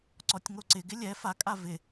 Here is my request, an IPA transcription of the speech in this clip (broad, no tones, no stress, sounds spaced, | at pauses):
ǀ ɔ tʲ ŋ o ǀ ɪ ɡ ɪ lʲ ɛ f a kʼ a v ɪ